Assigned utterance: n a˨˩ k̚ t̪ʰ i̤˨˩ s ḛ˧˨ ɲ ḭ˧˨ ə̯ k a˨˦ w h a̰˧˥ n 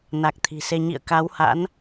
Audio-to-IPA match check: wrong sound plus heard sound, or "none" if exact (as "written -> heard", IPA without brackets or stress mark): ḛ˧˨ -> e˧